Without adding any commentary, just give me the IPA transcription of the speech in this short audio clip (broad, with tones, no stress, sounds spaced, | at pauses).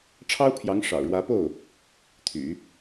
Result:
ʈ͡ʂʰ ɑ˥ ʊ̯ pʰ j ɑ˧˥ ŋ ʂ ɑ̰˨˩ ʊ̯ ɻ w ä˧˥ p o˥˩ ʊ̯ | t̪ʰ y̰˨˩˦